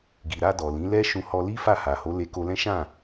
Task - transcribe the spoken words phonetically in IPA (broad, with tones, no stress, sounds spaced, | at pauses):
ɡ i˨ ɾ a˧ d ɔ˨ l ĩ˨˦ l ɛ˦ ʃ ũ˧ h ɔ˧ l i˦ f a˦˨ h a˨ h o˨˦ l e˧ k o˧ l ɛ̃˦ ʃ ã˦˨